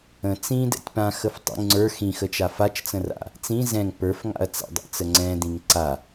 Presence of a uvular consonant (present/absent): absent